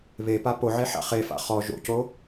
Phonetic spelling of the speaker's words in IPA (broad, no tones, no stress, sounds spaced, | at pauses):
β e p a p o ʕ e ħ a̰ χ e f a̰ χ ɔ ʒ o̰ c o